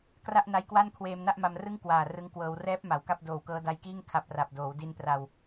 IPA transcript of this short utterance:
k r a˥˩ ʔ n a˦˥ j k w a˥˩ n kʰ w eː˧ m n a˥˩ ʔ m a˧ m r ɯ˥˩ ŋ k w aː˨˩ r ɯ˦˥ ŋ k w ɤː˧ w r ɛː˦˥ p̚ m a˩˦ w k a˥˩ p̚ d oː˨˩ w k ɤː˦˥ d a˧ j k iː˥˩ ŋ kʰ a˦˥ p̚ r a˨˩ p̚ d oː˩˦ w d i˧ n p r a˨˩ w

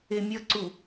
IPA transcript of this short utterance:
e mʲ ʌ ǀ u

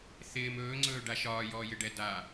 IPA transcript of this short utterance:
θ ɪː m ɵː ŋ͡ǀ ɵː ɖ a ʃ ɒː j ɔː j ɪ ɖ ɛ d a

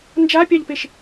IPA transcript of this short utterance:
n d͡ʒ a pʲ ɑ ʎ p e ʃ

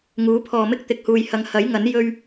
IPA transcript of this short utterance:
ŋ uː˨˥ pʰ ɔː˨ m ɪ˥ k̚ t̪ ɪ˨ k̚ h uː˨ j h ɐ˨˧ ŋ h ɐ˨˥ j ŋ ɐ˨˥ n j ɵ˥ ɥ

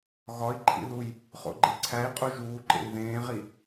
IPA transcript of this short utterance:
ɣ ɒ i̯ ǃʰ ḭ ð u j | χ o̰ ɡ͡ǃ e ǀʰ æ i̯ qʼ u ʒ uː ǃ ḛ i̯ ð ẽː ʁ i

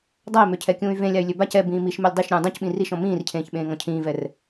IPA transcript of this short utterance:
dˤ a i̯ m ø cʰ ɛ kʲ ũː y̯ v ẽ lʲ a y̯ lʲ ø b a c ɛ b ĩː m i ʃ m ɛ lʲ dˤ i ʃ ɾʲ ũː dˤ ũ c ɓ ĩ r i ʃ ɔ̃ m ĩː r cʰ ẽː ç ɓ ẽː ŋ ɔ̃ cʰ ĩː v ɛ r

